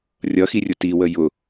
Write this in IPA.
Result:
rʲ ʌ x i rʲ ʊ t i w ə j ʊ

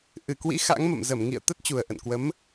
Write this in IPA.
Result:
ʔ ɨ˨˩ k w ḭ˧˥ x a̰˧˥ ŋ m ə̰˧˨ m z ə˧˩ m ŋ ḭ˧˨ ə̯ t̪ ə˦˥ t̚ t͡ɕ u˨˩ ə̯ ʔ ə̰˧˨ n k w ə˨˦ m

